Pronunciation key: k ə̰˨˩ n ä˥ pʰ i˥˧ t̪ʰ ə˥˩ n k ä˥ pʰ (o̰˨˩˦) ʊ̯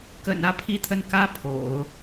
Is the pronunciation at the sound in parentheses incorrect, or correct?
correct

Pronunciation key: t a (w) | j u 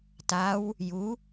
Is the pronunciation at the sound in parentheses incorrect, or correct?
correct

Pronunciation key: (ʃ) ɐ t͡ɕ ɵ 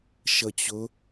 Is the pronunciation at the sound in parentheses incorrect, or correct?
correct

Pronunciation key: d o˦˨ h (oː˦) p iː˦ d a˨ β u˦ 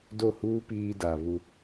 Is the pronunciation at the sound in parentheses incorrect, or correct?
incorrect: uː˦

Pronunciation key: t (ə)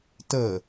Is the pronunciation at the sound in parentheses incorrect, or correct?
correct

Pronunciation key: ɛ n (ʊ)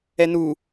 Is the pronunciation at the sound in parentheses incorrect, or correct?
incorrect: u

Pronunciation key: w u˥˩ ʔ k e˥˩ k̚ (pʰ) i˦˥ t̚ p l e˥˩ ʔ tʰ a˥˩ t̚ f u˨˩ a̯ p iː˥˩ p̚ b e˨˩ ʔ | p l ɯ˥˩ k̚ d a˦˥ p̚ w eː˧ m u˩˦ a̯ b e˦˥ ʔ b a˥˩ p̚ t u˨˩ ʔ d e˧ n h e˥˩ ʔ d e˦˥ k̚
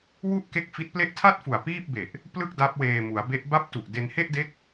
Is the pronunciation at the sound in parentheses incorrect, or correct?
incorrect: f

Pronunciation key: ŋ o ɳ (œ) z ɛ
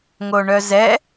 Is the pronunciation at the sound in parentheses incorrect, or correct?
correct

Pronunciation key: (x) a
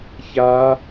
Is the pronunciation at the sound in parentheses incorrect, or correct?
incorrect: ç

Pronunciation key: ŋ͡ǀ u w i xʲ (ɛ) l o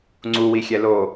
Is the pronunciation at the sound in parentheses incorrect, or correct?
correct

